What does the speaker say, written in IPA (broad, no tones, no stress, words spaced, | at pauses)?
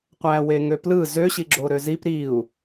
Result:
qʷæweŋøplɯ zøɕiɡ͡ǁo ɾøzip ɾiu̯